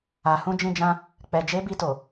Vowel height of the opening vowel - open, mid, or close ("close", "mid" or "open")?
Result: open